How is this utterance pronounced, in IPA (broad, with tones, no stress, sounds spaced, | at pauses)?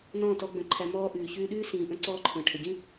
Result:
n ɔ̃ː˦˨ t ɔ˧ ɡ͡b ə̃˦˨ ǃʰ æ˦ m ɔː˧ ʔ ʉː˨ ç ʉː˧ ɗ ʉː˦ s ĩː˨ ʔ ə̃˧ ǀ ɔː˦ ǃʰ ə̃ː˨ ʈʰ ə˨ ɟ ĩ˦